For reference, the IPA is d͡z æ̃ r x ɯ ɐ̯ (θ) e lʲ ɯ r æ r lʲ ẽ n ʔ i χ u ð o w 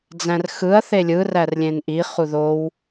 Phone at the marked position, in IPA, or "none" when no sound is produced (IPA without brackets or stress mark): θ